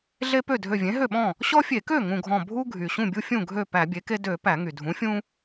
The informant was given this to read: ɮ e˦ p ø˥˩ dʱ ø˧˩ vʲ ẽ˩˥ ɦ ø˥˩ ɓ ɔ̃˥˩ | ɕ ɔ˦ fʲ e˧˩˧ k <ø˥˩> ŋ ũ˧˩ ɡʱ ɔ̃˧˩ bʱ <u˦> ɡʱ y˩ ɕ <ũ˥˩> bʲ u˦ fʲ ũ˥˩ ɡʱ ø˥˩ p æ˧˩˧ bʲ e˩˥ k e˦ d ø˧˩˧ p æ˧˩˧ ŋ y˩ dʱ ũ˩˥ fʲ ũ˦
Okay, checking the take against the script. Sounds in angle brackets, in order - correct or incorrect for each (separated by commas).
correct, correct, correct